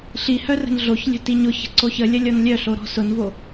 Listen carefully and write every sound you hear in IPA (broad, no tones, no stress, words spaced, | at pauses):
ɬihœ rə̤nɮoçlʲə̤ tiɲʊçə̤ ǀoçəlʲɐ lʲɔnlʲœɬo ɾɔ̤sʊnvo